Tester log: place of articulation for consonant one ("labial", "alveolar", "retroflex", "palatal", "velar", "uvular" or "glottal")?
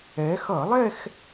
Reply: velar